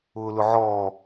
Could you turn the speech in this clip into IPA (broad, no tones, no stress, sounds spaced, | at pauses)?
ʊː l ʊ ʕ ɔː